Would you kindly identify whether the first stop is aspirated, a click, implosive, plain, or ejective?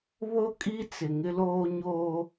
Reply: ejective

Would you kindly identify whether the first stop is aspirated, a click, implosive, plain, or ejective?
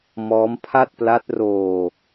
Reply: aspirated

